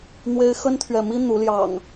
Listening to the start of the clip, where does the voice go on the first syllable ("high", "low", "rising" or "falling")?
high